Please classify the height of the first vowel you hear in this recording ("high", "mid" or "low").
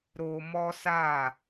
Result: mid